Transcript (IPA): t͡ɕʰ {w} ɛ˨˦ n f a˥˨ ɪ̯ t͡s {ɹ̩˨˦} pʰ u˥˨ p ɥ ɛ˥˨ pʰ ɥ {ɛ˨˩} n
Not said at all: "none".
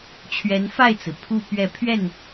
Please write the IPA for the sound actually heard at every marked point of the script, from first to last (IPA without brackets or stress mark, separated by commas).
ɥ, ɹ̩˩, ɛ˥˨